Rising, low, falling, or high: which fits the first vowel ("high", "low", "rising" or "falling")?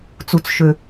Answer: low